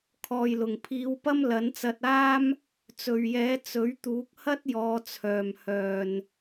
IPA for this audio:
kʰɔː˨jlʊ˨˩ŋ pʰiː˨˧wpɐ˥m lɐ˨˥nt͡sɐ˧t̚aː˥m | t͡sɵ˨ɥjɛː˨˥ t͡sɵ˨˥ɥt̪uː˨˥k̚ hɐ˥t̚jɔː˨˧t͡sʰœː˨m hœː˨n

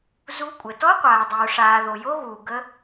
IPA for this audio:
zu˦˥kʷʼə˨ tɔ˦˥qʷaː˨dˤuː˨ʂaː˨ ðo˨jo˦˥ɣuː˨ ɡə˦˥

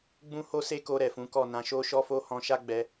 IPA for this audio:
ɡ͡bũ˦ho˦se˦ko˧ ɾɛ˨fũ˨˦kɔ˦˨ nã˧ʃo˦ʃɔ˦fo˦ hɔ̃˧ʃa˦ɡ͡bɛ˧

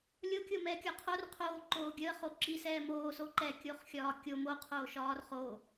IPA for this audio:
lʲokʲomɛː kʲɒqʰor qʰoː ǃoːɡʲəːχo ǁisɛː moː soǃɛ kʲoχxʲɒːkʲo moqʰoːʃɒːr χoː

